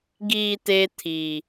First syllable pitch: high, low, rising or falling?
low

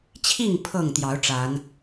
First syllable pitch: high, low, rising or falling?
falling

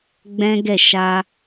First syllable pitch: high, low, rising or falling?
high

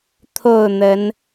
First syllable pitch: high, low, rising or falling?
falling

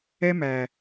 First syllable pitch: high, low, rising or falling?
high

